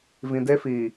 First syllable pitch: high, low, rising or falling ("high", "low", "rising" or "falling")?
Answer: low